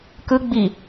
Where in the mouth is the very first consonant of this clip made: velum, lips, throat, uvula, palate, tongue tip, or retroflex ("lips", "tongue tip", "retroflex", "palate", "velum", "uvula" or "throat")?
velum